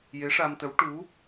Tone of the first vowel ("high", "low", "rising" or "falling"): rising